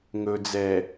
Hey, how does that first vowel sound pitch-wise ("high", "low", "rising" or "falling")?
low